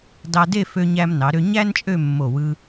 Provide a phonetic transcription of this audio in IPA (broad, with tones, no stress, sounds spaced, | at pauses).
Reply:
d ɑ˧ d e˥˧ f ø˧ ɲ æ˧ m n ɑ˩˧ ɾ ø˧ ɲ æ˥ n t͡ʃʼ ø˥˧ mː o˧˩ w ɯ˧